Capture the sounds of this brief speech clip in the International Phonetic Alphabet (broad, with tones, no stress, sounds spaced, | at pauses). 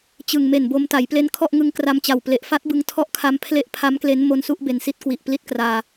t͡ɕ ɯ˨˩ ŋ m e˨˩ n b o˧ m t a˩˦ j p l e˦˥ n kʰ ɔ˥˩ ʔ ŋ ɯ˦˥ ŋ k r a˧ m t͡ɕ a˨˩ w p l e˨˩ ʔ f a˦˥ t̚ b ɯ˧ ŋ tʰ ɔ˦˥ ʔ kʰ a˧ m pʰ l e˦˥ ʔ pʰ a˦˥ m k l e˦˥ n m o˧ n s u˥˩ ʔ b e˨˩ n s i˦˥ t̚ k w i˨˩ ʔ p l i˦˥ t̚ k r aː˧